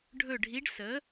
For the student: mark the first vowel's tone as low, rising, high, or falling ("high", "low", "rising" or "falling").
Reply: falling